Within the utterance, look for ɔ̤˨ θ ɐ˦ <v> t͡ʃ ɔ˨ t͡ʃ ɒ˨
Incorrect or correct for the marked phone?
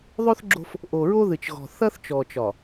incorrect: θ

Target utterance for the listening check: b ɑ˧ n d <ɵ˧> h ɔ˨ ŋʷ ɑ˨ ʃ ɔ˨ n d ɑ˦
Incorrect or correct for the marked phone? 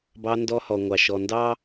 incorrect: ɔ˧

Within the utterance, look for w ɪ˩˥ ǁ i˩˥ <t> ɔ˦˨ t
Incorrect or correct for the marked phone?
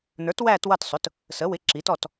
correct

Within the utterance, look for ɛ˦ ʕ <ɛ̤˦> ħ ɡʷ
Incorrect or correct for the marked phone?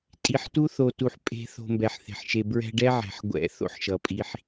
incorrect: ɛ̤˩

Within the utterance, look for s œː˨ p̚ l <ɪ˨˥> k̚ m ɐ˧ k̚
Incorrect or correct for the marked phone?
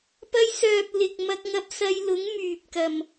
incorrect: ɪ˨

